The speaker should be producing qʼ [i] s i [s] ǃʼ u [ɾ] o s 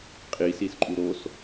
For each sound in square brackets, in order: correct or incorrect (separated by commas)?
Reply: correct, correct, correct